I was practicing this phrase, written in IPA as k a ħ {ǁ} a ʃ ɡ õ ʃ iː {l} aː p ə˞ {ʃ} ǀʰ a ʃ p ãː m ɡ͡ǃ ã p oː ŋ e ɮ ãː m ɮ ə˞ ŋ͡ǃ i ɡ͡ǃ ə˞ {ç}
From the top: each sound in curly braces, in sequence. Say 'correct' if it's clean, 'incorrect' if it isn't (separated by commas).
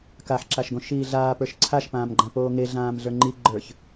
correct, incorrect, correct, correct